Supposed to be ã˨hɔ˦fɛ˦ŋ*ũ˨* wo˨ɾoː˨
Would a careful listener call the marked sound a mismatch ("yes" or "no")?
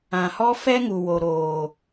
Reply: yes